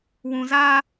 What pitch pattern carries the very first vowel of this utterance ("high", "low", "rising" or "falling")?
low